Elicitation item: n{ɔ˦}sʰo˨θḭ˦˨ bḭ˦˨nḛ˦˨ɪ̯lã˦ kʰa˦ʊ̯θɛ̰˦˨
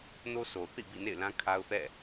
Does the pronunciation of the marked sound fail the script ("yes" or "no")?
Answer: yes